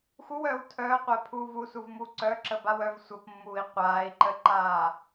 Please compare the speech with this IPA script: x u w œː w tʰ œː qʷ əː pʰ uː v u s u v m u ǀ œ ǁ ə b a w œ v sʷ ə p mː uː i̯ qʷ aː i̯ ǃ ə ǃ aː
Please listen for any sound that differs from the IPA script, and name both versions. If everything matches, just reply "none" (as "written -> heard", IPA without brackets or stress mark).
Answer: none